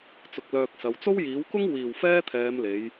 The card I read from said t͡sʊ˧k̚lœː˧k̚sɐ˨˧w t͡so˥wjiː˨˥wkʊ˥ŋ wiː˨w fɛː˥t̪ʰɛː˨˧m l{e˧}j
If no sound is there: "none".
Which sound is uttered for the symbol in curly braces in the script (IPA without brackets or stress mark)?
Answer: e˨˧